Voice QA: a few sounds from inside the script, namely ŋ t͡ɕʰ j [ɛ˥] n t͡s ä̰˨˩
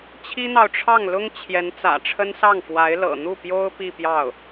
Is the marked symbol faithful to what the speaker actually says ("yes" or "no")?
no